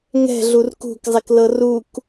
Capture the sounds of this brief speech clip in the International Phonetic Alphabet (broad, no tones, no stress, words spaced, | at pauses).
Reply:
ŋɛ̤ɮur kṳkzˤiklɤ ruk